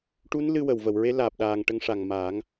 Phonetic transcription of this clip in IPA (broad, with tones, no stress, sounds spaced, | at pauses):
ʈ u˧˥ n l ɨ˧ w ə˨˩˨ w v ə˨˩˨ w ɹ e˧˥ l aː˨˩ p̚ ɗ aː˨˩ ŋ ʈ ə˧˥ ŋ ʂ a˨˩ ŋ m aː˨˩˦ ŋ